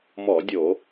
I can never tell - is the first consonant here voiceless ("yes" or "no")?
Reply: no